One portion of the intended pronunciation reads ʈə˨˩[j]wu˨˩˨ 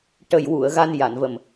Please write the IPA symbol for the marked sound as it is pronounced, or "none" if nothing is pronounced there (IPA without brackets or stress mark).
j